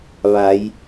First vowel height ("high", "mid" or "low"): low